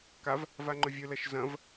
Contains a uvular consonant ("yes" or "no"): no